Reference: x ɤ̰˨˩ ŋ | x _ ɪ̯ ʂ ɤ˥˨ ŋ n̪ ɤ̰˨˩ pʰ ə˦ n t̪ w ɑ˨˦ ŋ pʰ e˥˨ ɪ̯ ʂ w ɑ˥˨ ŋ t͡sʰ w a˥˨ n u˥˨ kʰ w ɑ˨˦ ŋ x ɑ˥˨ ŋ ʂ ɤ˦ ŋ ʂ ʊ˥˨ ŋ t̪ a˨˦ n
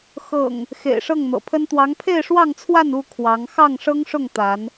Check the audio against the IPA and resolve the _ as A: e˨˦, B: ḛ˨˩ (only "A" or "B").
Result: B